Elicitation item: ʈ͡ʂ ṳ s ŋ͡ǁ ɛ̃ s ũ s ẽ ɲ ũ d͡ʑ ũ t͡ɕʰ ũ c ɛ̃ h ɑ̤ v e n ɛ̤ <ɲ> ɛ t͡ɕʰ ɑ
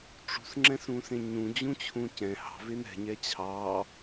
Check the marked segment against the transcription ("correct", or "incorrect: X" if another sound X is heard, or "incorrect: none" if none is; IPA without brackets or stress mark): correct